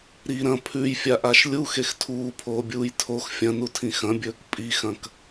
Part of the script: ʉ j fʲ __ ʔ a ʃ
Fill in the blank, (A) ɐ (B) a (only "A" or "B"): B